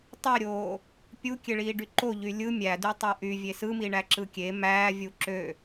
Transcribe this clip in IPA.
tˤ e ɾʲ oː | pʲ u kʲ e ɭ iː ɖ y ǃ o ʎ y lʲ ɯ mʲ æ d y tˤ o ʔ y vʲ e s ɯ m i ɳ æ ǁ ɯ kʲ e m æː vʲ u ǁ ø

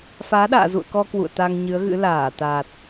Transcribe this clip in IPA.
f aː˨˦ ɗ a̰ː˧˨ z ṵ˧˨ ə̯ k ɔ˧ k w ṵ˧˨ ə̯ t̪ a˧ ŋ ɲ ɨ˨˦ ə̯ ɣ ɨ̰˧˥ l aː˧˩ t̪ aː˨˩ t̚

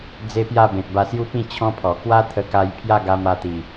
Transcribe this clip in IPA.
d͡z e˦ p j a˥˧ b ẽ˨ t̚ b a˧ s j u˦ p ĩ˥˧ t͡ɕʰ ɔ̃˦ pʰ ɔ˨˩ k w a˦ t̪ʰ ə˧ k a˧ j pʰ j a˥˧ ɡ a˧ m a˧ t̪ i˨˩

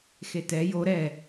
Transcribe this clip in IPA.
x e t ɛ j o ɾ ɛ

